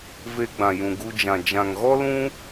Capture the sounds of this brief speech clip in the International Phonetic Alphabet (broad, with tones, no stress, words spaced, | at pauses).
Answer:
ve˧ɡ͡bã˨jũ˨ ɡu˧d͡ʒã˨ d͡ʒã˨ŋɣɔ˦lũ˦